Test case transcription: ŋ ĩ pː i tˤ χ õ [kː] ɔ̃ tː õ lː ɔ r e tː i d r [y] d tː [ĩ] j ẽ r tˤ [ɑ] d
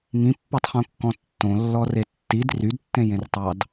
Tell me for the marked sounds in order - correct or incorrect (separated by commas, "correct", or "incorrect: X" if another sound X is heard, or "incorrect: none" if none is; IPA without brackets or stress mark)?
correct, correct, incorrect: ẽ, correct